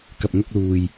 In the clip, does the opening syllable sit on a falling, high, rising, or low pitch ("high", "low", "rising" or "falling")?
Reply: low